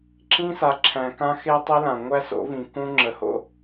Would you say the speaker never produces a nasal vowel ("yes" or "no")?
no